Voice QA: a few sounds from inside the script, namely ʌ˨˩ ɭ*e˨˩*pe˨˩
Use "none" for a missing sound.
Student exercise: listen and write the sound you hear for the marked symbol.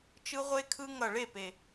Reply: e˥˩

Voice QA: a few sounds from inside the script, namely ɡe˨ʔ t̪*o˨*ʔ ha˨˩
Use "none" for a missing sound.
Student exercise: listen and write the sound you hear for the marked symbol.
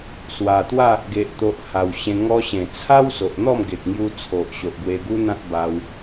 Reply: o˨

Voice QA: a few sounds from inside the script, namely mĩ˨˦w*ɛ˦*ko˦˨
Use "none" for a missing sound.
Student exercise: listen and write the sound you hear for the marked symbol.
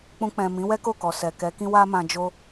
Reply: ɛ˦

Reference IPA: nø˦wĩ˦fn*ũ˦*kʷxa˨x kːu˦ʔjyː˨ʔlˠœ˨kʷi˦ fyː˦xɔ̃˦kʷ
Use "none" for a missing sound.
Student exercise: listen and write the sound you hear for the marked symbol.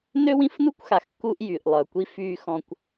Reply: u˦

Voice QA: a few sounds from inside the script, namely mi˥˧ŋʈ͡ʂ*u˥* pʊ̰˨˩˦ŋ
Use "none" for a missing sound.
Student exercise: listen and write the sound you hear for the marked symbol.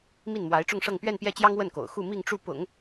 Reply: u˥˩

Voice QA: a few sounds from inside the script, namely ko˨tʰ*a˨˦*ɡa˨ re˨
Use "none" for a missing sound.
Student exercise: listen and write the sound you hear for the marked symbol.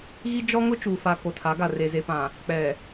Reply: a˨˦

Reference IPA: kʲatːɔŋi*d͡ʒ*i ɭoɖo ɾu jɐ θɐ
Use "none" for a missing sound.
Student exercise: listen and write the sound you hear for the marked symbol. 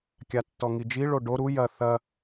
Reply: d͡ʒ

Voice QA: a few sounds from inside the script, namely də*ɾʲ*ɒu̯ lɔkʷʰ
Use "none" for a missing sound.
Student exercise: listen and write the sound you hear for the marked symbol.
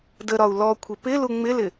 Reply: ɾ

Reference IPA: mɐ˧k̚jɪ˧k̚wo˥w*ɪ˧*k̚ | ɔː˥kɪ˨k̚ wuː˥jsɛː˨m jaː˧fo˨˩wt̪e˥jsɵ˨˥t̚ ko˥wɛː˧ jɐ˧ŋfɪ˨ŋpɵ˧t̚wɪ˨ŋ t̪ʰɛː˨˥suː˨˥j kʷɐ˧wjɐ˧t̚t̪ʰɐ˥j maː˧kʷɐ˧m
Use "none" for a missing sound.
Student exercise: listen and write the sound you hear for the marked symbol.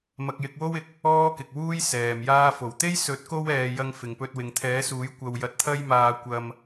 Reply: ɪ˨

